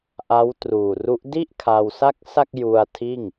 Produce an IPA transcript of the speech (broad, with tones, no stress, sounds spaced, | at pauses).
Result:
ʔ a˦˥ w t r uː˨˩ r u˦˥ ʔ d i˥˩ ʔ kʰ a˧ w s a˥˩ k̚ s a˥˩ k̚ j u˧ a̯ tʰ iː˥˩ ŋ